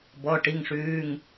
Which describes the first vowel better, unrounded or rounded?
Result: rounded